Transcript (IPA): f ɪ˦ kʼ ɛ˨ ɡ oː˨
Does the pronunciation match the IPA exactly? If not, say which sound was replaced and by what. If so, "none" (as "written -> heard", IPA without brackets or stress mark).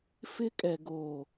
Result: none